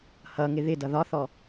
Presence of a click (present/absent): absent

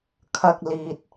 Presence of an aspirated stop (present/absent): present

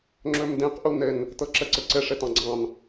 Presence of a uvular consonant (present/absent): present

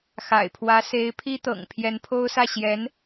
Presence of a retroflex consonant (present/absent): absent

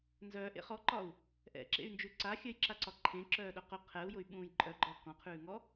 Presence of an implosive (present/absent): present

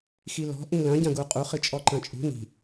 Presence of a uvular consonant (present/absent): present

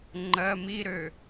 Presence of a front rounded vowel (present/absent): present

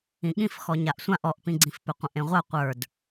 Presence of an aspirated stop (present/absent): absent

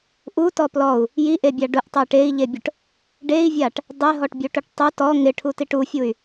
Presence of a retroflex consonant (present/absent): present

